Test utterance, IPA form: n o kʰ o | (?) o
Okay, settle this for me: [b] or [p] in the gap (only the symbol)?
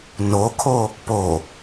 p